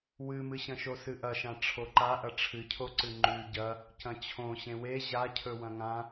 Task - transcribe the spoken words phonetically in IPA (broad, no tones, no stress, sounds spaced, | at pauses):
w ɨ m ɨ ɕ ɐ̃ ʃ o s ɨ ʔ ɐ ʃ ã ʈ͡ʂʰ o ǃ a ʔ ɐ ʈ͡ʂʰ ɨ cʰ o ǀ ɨ ŋ͡ǃ ʉ ɟ ɐ | c ɐ̃ t͡ɕʰ õ ɕ ẽ w e ʑ a cʰ ɵ w ɐ̃ ŋ ã